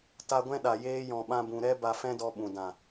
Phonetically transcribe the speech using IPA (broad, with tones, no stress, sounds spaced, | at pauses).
t a˧ ɡʷ ɛ̃˦ ɗ a˨ j eː˧ j ɔ̃˨ ɓ ã˧ b ũ˨ ɾ ɛ˦ b a˧ f ɛ̃˦ d ɔ˧ ɓ ũ˨ d ã˨